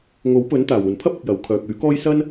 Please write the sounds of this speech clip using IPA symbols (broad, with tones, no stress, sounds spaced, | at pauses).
ŋ o˨˥ w p ɵ˨˥ n t̪ aː˨˩ w uː˨˩ n pʰ ɐ˥ p̚ ɪ˨ k̚ j ɐ˨˧ w kʰ œː˨ k̚ yː˨˥ k ɔː˥ j s ɐ˥ n